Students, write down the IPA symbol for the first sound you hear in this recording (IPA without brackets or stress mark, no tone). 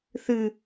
θ